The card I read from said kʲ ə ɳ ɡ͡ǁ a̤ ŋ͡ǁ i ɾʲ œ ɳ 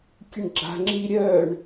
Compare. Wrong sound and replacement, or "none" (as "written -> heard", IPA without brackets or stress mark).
none